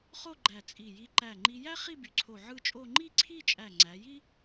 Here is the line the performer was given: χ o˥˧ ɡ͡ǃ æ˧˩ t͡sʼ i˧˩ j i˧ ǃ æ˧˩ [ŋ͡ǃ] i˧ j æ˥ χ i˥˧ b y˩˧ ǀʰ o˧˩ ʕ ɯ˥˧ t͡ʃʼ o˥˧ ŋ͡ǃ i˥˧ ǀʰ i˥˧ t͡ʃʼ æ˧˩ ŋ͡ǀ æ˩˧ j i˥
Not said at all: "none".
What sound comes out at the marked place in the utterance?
ŋ͡ǃ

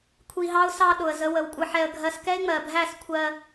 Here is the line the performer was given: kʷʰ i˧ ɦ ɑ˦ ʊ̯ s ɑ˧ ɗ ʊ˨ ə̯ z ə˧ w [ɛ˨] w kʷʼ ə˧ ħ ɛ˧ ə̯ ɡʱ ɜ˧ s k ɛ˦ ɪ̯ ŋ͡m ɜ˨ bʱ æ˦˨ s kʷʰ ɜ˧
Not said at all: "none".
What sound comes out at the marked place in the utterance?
ə˨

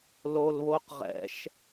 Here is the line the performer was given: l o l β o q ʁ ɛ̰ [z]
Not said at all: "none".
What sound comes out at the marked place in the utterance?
ʃ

